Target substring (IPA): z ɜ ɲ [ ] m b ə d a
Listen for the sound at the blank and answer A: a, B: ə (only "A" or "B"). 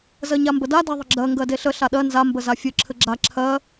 A